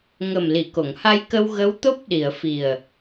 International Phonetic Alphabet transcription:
ŋ ə˨˩ m l i˨˩˨ k o˨˩˨ ŋ h a˧ j k ə˧ w ɣ ə˧˥ w t̪ o˦˥ p̚ ɗ i˨˩˨ ə̯ f i˨˩ ə̯

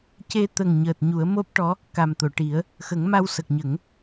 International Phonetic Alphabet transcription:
c e˧ t̪ ə˨˩ ŋ ɲ əː˨˩ t̚ ɲ u˨˩˦ ə̯ m o˦˥ p̚ ʈ ɔ˧˥ | k a˨˩ m t̪ o˨˩˨ ʈ i˨˩˦ ə̯ | x ə˨˩˦ ŋ m a˧ w s ə˨˩ k̚ ɲ ə˨˩˦ ŋ

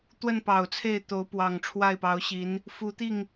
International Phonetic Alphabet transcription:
t̪ w ə˥˩ n p ɑ˨˩ ʊ̯ t͡sʰ e˥˩ ɪ̯ t̪ o˧˥ ʊ̯ p w ɑ˨˩ ŋ ʈ͡ʂʰ w a˥˩ ɪ̯ p ɑ˧˥ ʊ̯ ɕ i˧˥ n | f u˧˥ t̪ i˥˩ ŋ

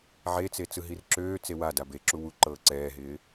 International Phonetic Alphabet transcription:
ʕ e t͡s e t͡s ɯ ɦ i r ǁ øː t͡s e w a d a b e ǁ u w u ǃ ɤː ǀ ɛː ɦ ɪː

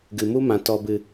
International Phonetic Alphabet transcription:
ɡ ɨ˨ m u˦ m ã˨ t ɔ˨ b ɨ˨

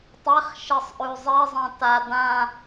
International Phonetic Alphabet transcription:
tˤ ɛ χ ʃ e sˤ ʔ ʉ zˤ e zˤ ã t a d ã

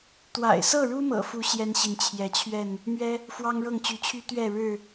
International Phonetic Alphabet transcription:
t̪ w a̰˨˩ ɪ̯ s ɤ˥˨ ɻ u˦ m ɤ̰˨˩ f u˨˦ ɕ j ɛ˦ n ɕ i˨ n t͡ɕʰ j ɛ˨˦ t͡ɕʰ ɥ ɛ˥˨ n | m ɥ ɛ˦ | f w ɑ˦ ŋ ɻ ɤ˥˨ ŋ t͡ɕ y˨˦ t͡ɕʰ y˦ t̪ ɥ ɛ˥˨ ɻ ɻ̩˥˨

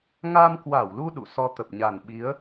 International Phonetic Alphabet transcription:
ŋ a˧ m k w a˧˩ w l u˧ ɗ ṵ˧˨ s ɔ˧ t̪ ə˨˩ p̚ ɲ a˨˩ n ɓ i˨˦ ə̯

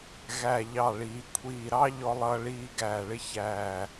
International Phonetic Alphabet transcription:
ɣ æ˧˩ ʎ ɑ˧˩ ɭ iː˩˧ kʷʰ iː˧˩ ɾ ɑ˥ ʎ ɔ˥ lˠ ʌː˥ ɭ iː˥ ɡ æː˧˩ ɭ ɪ˥ ç æː˧˩

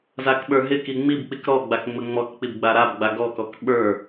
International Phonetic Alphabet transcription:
z a k ɓ ə˞ ɦ ɪ k i ŋ͡m i b k͡p i k ɾ ɔ ɡ͡b a k ŋ͡m ə ŋ͡m ɔ k k͡p i b ɡ͡b a ɾ a b ɡ͡b a ɡ ɔ k ɔ k ɓ ə˞

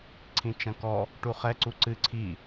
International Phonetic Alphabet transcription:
ǀʰ ĩ t͡ʃ ɐ̃ k ɔ | ʈ u χ ɛ ǀ u ǀ ɨ ǀʰ i

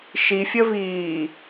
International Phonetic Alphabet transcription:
ʃ i fʲ ə v iː

